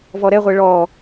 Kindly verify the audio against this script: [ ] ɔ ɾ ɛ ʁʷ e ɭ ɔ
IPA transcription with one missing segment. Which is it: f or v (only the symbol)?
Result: v